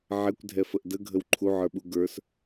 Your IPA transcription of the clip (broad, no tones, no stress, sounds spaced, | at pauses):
ʕ ɛ kʷ dʱ ɛ f ə ʔ d ə ɡʱ ə w ǃʰ u ʕ ə˞ ɓ u ɡ ə˞ s